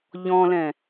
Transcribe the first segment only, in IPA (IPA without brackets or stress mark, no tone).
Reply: ʎ